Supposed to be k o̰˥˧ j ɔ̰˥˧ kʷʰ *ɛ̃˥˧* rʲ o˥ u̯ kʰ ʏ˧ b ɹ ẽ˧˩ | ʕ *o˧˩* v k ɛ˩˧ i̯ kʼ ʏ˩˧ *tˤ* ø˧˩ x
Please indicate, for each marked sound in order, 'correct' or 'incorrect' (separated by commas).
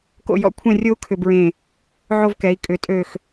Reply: correct, incorrect, incorrect